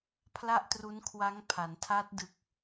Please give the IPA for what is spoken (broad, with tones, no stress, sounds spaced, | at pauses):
pʰ l a˥˩ ʔ t r u˦˥ n kʰ w a˦˥ ŋ pʰ a˩˦ n tʰ a˦˥ t̚ d ɯ˨˩ k̚